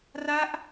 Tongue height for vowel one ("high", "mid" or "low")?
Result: low